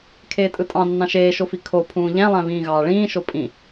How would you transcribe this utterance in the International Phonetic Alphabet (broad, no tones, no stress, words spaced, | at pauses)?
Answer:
kʰeːtʼɯtʼɑ̃ nːɑ̃ʃeːʃofi kʰo pʰũːʎæ̃lˠæ̃ βĩːɣɑːɭĩː ʃopʼĩ